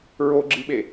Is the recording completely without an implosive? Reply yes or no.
no